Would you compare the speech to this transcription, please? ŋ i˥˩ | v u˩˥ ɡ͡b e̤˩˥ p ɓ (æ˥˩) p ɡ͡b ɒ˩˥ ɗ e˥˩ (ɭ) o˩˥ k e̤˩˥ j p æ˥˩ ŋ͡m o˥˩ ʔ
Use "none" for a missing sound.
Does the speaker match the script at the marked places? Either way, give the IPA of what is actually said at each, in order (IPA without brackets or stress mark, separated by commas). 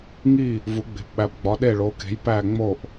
æ˩˥, ɭ